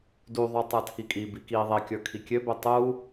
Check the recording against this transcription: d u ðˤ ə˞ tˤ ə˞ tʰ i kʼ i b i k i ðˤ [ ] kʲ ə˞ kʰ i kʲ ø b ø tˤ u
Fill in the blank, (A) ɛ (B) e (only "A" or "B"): B